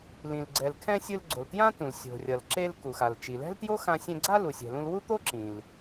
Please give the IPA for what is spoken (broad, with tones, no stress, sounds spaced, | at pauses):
l ĩ˩ l ɡ͡ǀ ɛ˩ l kʰ ɛ̃˧ sʲ ɯ˧ l ɡ͡ǀ o˩ l t j ã˥ t ũ˩ l sʲ o̤˩ rʲ ʌ˩ l ǁ e˧ l k u˩ x a˩ l t͡ʃ i˩ l ɛ̤˥ l t j o˥ x ã˧ sʲ ɛ̃˧ ɡ͡ǀ a˥ l u˩ sʲ ɛ̤˩ l ũ˧ l w u˥ t̪ o˥ ǁ ĩ˩ l